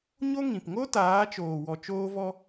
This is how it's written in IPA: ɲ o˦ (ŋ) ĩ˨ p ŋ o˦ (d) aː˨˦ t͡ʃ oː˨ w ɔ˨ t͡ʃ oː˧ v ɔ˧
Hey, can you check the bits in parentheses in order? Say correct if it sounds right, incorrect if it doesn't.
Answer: correct, incorrect: t

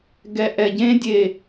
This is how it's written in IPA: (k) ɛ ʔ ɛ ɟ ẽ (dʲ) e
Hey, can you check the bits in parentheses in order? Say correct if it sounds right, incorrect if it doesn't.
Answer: incorrect: ɡ, correct

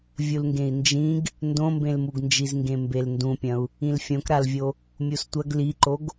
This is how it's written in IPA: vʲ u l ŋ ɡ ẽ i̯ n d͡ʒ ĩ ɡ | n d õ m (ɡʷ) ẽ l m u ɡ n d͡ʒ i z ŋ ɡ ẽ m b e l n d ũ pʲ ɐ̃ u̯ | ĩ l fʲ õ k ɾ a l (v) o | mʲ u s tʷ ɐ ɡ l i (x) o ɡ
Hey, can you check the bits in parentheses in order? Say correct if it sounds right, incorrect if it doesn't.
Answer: incorrect: b, incorrect: vʲ, incorrect: ǃ

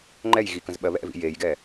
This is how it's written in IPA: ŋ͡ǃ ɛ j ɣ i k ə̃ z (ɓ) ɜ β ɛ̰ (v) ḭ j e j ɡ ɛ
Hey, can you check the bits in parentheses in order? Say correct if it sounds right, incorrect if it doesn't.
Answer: correct, correct

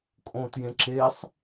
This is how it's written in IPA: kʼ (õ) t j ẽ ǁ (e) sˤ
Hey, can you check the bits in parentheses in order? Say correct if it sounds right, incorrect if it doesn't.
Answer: correct, correct

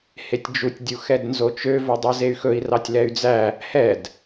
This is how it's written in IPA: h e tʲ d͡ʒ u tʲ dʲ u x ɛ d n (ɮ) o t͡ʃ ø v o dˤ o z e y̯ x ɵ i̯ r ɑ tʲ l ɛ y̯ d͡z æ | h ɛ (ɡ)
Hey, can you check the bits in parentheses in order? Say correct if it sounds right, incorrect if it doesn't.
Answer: incorrect: z, incorrect: d

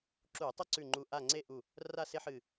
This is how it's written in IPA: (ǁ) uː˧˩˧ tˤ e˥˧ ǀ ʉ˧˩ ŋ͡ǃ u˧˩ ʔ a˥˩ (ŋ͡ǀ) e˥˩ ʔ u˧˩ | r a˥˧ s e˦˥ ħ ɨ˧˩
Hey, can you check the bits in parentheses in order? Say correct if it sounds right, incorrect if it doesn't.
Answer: correct, correct

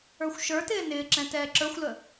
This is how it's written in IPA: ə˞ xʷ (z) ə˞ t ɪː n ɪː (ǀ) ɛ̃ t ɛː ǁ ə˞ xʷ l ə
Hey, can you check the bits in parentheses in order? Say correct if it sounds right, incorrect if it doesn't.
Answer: incorrect: ʃ, incorrect: ǁ

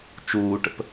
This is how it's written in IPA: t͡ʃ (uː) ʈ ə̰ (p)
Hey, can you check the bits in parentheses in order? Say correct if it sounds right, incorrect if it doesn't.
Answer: correct, correct

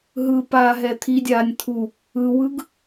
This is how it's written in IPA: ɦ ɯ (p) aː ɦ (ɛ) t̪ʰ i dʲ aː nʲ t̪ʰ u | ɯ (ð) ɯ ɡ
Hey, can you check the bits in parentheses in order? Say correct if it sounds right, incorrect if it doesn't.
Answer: correct, correct, incorrect: w

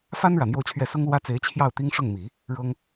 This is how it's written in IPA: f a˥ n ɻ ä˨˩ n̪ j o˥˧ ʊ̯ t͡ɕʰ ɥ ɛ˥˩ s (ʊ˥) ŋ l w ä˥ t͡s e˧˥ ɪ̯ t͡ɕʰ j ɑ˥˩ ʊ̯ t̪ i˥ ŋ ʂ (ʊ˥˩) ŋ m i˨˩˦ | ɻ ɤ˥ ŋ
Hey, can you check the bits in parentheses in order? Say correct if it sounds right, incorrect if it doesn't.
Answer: correct, correct

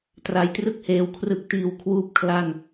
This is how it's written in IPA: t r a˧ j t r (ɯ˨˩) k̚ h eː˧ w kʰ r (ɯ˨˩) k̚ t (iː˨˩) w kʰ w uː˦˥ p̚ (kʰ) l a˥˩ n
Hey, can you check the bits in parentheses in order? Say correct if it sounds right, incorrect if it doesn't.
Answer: incorrect: ɯ˥˩, correct, correct, correct

